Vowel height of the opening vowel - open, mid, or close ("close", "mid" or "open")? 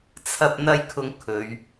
open